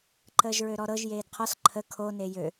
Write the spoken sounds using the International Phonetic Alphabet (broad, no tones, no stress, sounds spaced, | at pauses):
ǃ əː ʒ ɹ ø ɾ ɔ ɾ ɤ ʒ j eː d qʰ ɔ s ǃʰ ə kʰ o n e j ø